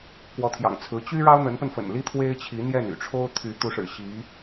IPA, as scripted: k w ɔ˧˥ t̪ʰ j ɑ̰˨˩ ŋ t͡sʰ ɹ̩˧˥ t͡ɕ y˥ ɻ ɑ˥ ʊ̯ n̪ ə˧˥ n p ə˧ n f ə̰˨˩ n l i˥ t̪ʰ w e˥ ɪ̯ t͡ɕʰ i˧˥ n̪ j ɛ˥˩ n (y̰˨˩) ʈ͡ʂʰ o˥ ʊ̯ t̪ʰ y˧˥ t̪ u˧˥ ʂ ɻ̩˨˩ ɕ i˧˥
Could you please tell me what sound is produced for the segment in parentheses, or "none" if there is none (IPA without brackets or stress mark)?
y̰˨˩